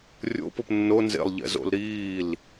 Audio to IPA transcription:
rʲo̰pop nːo nzḛlˠʎɛ̰zo̰l ɾiːl

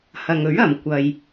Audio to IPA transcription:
hɐ˨ŋɵ˨˥ɥ ɐ˨mkʷɐ˨j

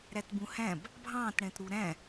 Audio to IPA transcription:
ɾætbũhæ̃b | bʱɑ̃tɽɛ̃tɾu ɾæ̃

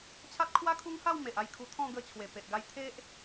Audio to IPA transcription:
t͡ɕʰa˦t̚kʰwa˦kʰu˦ŋha˥˧w me˨ʔa˧jkʰu˧t̪ʰɔ̃˥˧ ɡə˧t͡ɕʰwe˨˩pe˨ʔɡa˧j t̪ʰe˦ʔ

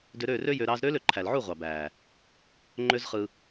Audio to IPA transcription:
dø˧ɾøː˦˨rø˦ jø˧ɾɑː˦z ɾøː˦lø˨ǃʰæ˨lʕu˦˨ ʁʷɑ˨bæː˨ | ŋ͡ǃø˦zχɯ˧

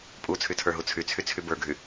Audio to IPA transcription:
pʼut͡sʰytʰə˞ɦu t͡sʰyt͡sʰyt͡sʰy bə˞ɡʱy

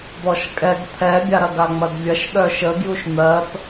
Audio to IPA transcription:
d̪ɔʃkʼɛɡ t̪ʰɛbʲaɾɐ ɡaŋ͡mɐdvʲɐʃ ɗœʃəɡjuʃ n̪ɜp

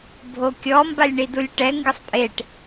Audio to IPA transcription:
bʱokʲɔ mbalʲɳidulʲʈɛ ŋɡɪsˤpʼeʈ

